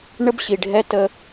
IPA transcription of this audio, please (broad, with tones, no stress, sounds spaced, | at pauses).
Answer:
ɳ ə˥ b ɕ i˨ ɖʱ ɛ˥ t ə˦